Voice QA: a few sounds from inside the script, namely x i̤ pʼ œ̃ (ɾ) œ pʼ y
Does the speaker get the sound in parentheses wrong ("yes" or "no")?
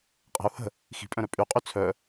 no